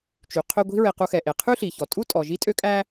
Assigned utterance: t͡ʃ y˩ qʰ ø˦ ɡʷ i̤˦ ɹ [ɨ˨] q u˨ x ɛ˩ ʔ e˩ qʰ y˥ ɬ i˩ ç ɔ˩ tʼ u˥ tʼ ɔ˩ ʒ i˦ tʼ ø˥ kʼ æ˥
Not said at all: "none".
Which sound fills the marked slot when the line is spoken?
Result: e˨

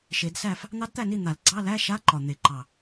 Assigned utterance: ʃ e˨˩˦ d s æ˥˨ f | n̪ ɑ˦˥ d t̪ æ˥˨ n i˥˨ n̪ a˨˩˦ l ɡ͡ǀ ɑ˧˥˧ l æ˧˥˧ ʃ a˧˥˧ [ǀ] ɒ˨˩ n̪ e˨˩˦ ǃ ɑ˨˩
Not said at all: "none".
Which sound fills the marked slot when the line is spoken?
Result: ǃ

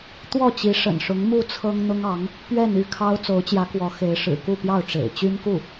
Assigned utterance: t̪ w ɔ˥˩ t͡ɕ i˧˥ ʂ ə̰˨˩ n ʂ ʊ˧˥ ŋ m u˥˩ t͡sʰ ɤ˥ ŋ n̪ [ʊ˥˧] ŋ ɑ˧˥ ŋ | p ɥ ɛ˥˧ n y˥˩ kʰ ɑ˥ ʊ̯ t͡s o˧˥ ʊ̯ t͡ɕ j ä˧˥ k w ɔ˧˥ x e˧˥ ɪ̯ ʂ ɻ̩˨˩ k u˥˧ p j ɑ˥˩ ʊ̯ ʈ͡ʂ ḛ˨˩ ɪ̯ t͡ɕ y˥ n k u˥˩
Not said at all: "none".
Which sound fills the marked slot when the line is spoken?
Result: ʊ˥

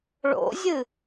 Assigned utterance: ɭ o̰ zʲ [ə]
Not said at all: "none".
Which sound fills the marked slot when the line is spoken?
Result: ɨ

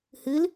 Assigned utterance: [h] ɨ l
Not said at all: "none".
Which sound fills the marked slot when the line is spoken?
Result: h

